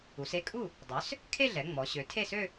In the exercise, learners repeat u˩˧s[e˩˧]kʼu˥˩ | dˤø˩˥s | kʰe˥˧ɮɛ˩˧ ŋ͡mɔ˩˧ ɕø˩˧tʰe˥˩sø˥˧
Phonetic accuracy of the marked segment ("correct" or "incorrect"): incorrect